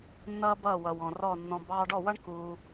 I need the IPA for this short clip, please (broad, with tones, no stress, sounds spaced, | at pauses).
nː ʌː˦ b ʌː˦˨ w ʌ˨ w ɔ̃˨ r ɔ˦˨ nː ɔ̃˧ b ɑː˧ ɖ ɔ˦˨ w ʌ˦ ɳ k uː˧